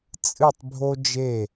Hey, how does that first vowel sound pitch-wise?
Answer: falling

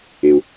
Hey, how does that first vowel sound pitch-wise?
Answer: low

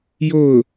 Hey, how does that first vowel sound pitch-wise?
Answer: falling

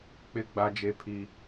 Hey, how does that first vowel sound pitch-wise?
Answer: high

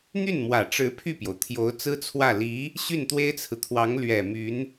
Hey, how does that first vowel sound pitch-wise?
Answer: falling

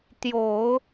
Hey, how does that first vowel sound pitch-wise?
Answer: low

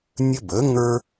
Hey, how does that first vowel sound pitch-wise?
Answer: high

